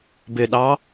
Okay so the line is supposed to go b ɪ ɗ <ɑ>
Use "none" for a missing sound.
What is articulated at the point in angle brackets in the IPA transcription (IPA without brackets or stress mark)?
ɑ